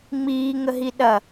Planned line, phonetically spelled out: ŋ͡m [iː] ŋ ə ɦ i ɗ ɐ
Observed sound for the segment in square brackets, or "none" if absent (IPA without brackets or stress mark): iː